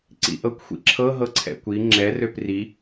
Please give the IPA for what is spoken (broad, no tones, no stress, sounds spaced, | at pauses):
ǀ ḭ ʔ ɤ kʷ xʷ ḭ ǁʰ ɤ ɦ ɤ ǀʰ ɛ̰ kʷ i ŋ͡ǁ ɛ r ø p r i